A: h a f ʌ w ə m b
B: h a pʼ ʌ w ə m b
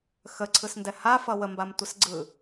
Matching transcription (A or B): A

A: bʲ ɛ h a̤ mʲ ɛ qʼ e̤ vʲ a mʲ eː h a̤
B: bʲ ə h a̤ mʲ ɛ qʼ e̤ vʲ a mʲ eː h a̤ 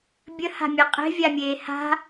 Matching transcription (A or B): B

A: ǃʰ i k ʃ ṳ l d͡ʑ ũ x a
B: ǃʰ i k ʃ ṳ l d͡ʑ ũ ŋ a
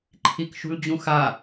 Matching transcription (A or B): A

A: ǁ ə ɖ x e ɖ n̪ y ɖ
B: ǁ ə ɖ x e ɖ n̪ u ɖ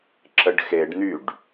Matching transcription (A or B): A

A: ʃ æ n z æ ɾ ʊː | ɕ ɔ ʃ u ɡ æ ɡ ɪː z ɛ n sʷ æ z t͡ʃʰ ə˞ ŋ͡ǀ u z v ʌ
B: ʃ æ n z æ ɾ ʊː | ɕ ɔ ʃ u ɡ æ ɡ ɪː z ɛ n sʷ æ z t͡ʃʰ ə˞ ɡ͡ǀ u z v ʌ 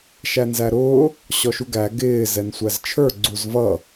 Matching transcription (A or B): B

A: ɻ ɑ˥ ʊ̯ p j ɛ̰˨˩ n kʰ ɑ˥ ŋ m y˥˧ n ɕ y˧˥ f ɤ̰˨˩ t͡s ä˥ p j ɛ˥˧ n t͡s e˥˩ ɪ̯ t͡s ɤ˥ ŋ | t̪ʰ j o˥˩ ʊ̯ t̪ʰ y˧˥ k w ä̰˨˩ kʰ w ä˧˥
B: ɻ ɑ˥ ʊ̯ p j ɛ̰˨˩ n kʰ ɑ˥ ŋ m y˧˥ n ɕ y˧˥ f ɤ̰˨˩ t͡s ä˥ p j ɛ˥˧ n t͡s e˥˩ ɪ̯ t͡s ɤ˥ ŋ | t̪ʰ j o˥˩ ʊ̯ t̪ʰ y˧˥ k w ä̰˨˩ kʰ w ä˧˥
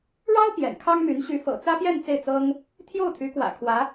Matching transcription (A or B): B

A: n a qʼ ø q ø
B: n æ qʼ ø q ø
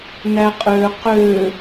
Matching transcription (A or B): B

